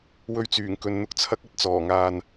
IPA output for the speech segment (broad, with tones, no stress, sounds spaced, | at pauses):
w ɵ˧ ɥ t͡s yː˨˩ ŋ k ɵ˨ n n̪ ʊ˨ k̚ t͡sʰ ɐ˨˥ k̚ ɐ˨ t̚ t͡s ɔː˨˩ ŋ aː˨ n